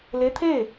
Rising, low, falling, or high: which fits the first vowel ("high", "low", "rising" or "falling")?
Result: rising